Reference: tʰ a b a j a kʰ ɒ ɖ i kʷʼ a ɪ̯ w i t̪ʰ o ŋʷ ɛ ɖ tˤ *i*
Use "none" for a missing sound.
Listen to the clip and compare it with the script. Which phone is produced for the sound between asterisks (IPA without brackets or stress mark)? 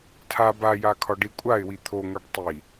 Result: i